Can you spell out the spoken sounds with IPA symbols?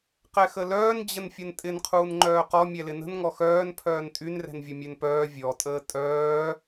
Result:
q ɛ x ə l œː n d͡ʑ ə n fʲ ə n tʼ ɪ n qʰ uː n ŋ͡ǃ œː q ɔ mʲ ɛ l ɪ n ə̤ n ŋ ɔ x œː n pʰ œː n tʼ y n r ɛ̤ n vʲ ʊ mʲ ø n p œː vʲ ɔ tʼ əː tʼ œː

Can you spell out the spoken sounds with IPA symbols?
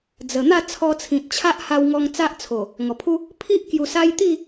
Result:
d͡z ə˨˩ n̪ a˥˧ t͡sʰ ɔ˧ t͡sʰ ĩ˨ t̚ t͡ɕʰ a˦ ʔ h a˧ w ŋ ɔ˧ ŋ t͡s a˦ ʔ t͡sʰ o˨˩ | ŋ ɔ˨˩ pʰ u˦ | pʰ i˦ ʔ k j u˧ s a˦ j t̪ i˥˧

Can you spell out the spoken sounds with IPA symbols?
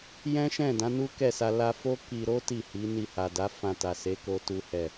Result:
j ɛ̃˦ ʃ ɛ̃˦˨ d ã˨˦ n u˦ k ɛ˦˨ s a˧ l a˧ f o˦ k i˧ ɾ o˦ t i˦˨ h i˨˦ n i˧ h a˨ d a˨˦ f ã˧ t a˨ s e˨˦ k o˦ t u˦ h ɛ˦˨

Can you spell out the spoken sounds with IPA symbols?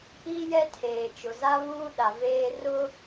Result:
i˦ j ɛ˦ tʰ eː˨ t͡ʃ ʊ˨ z a˦ β uː˦ ɗ a˨ v eː˦ r ʊ˦

